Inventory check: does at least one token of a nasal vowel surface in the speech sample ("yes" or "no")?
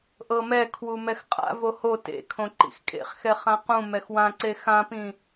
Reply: yes